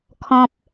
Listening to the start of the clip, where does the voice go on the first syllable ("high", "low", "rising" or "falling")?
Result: low